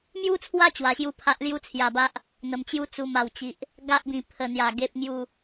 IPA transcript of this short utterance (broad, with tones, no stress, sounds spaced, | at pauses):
m j u˦ t͡sʰ w a˦ t͡ɕ w a˧ ɕ j u˦ pʰ a˦ ʔ l j u˦ t͡sʰ j a˨˩ b a˦ ʔ | n̪ ə˧ m t͡ɕ j u˦ t͡s u˧ m a˨˩ w t͡ɕ i˨ ʔ | ɡ a˦ ʔ b ĩ˨˩ pʰ ə˨˩ n̪ j a˨˩ ɡ e˨ p̚ ŋ j u˨˩